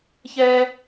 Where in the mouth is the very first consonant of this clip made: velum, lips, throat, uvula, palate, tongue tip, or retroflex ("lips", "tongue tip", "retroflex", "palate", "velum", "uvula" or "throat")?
palate